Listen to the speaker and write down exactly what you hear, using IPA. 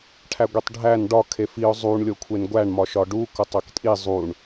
ʈʰæɡʷitˤɖʱæn ɖɒ kʰefiʊ̯ zˤuɳ lʲokʷʰenɡʷæɳ mɒʃɒɖu kotˤæktʼi zˤuɳ

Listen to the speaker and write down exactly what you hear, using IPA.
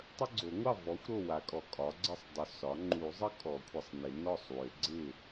tˤə˦ɡ͡ǀo˨˩˦ŋʷɑ˥˩ vɔ˩˥xʷ ɾo˥˩wa˨˩˦ kʼɔ˨kʼɒ˩˥ɡ͡ǀə˦sˤdˤʏ˩˥ sɒ˩˥ ŋ͡ǃu˨˩˦zˤə˦ kʼɔ˨˩˦kʷʰə˨sˤnɪ˨˩˦ nɔ˥˩sˤwʏ˨˩˦ ɡ͡ǀɪ˥˩

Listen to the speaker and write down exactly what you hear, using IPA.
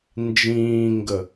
nd͡ʒĩːŋɡə

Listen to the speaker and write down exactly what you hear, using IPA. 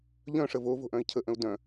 ʎœ̃ʂəv o vo̤ʔœ̃i̯cʰəʔə̃u̯ dœ̃

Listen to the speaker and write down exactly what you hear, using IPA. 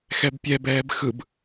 xɛbpʲɛbɛːb xɯb

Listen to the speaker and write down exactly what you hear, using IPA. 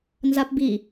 nzapbi

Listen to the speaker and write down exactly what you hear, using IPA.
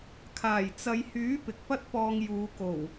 kʰaː˨˩jt͡sɐ˨˧jhyː˨˥ pɪ˨k̚pɐ˥t̚pɔː˧ŋjuː˨˧ ko˨˩w

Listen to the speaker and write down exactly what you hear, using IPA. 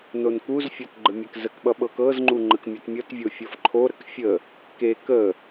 nonkuzfʲɒt ɡ͡ǃəmʲɛkzəkɓʌ ɓɤkɤzŋ͡ǃu ŋ͡ǃəkmʲətmʲʌtvʲo fʲʌfǃʰoɾək fʲə | kek ə

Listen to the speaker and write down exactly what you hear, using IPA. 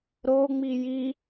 ɾoŋ͡mi ji

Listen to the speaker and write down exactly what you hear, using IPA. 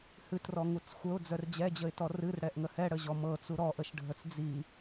hɨtrɔŋut͡s xʷəʊ̯d͡zœr d͡ʑɛd͡ʑəɪ̯tɔ rɨrɽɛʔŋə hɛɽəʑɔ mɤt͡su ɾɔʔəʃɖʱət͡s d͡zi

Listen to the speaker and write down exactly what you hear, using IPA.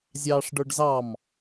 zʲɑːʂɖə˞ɖzɑm

